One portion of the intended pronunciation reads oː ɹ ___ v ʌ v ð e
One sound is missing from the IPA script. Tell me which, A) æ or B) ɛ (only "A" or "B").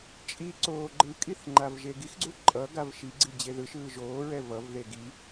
B